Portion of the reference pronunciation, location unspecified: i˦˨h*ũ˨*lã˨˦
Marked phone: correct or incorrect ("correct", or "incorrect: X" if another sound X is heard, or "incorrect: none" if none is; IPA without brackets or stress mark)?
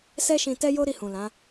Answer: correct